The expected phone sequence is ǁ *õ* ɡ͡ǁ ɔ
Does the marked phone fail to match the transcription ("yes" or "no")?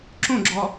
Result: no